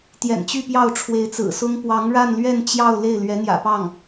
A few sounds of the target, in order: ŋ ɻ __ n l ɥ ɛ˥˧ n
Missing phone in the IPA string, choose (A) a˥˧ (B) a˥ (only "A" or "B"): A